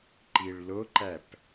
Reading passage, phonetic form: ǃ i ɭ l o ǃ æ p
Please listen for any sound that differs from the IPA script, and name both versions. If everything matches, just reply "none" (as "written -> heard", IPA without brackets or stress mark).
none